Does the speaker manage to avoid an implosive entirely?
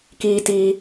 yes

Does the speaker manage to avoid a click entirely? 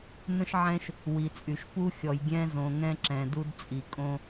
no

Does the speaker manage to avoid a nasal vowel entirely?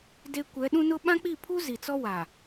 no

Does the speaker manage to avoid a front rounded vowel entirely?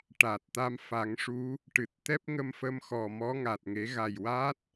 yes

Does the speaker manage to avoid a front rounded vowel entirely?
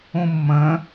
yes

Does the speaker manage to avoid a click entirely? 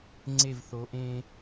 no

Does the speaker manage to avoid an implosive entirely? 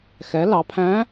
yes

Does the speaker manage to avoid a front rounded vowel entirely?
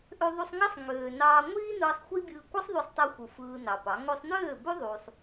no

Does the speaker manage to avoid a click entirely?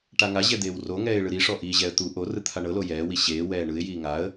yes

